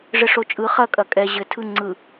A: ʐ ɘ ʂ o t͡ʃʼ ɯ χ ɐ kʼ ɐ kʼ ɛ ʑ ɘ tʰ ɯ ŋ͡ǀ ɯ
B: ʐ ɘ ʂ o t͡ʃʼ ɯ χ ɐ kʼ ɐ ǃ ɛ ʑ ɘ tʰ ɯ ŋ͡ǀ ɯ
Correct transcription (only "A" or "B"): A